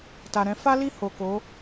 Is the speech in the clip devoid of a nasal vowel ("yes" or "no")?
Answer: no